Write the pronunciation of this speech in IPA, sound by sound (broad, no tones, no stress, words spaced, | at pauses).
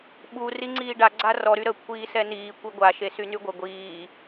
ɓu riŋ͡ǀiːɖa ɡ͡ǀarɔ ɾyɾə kʷʰiːsɛniː kʷiɡʷa ʃesynyɡʷə ɡʷiː